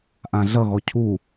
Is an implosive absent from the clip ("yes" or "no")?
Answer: yes